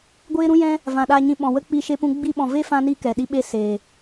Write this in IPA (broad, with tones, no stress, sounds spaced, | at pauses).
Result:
ɡʷ eː˦ ɾ ũ˦ j ɛ̃˦ | v ã˨ ɗ aː˧ ɲ ĩ˧ ɓ ɔ̃˨ w ə˦ k͡p i˦ ʃ e˦ p ũ˦ ɡ͡b i˧ ɓ ɔ̃˨ v e˦ f ã˦ n i˦ k ɛ˨ ɗ i˦ ɓ e˦ s eː˨